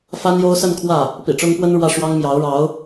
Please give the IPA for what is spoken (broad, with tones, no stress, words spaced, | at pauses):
fa˥njo˥ʊ̯ sə˥˧n kʰwä˥˩ | pḭ˨˩ʈ͡ʂʊ˥ŋ pwə˥nɻwä˥˩ ʂwɑ˥ŋ mjɑ˧˥ʊ̯ ɻɑ˧˥ʊ̯